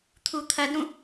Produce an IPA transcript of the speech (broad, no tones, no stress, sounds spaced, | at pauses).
t̪ʰ u t̪ʰ ɐ d ɾ ũ